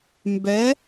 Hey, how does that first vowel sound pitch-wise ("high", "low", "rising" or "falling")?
rising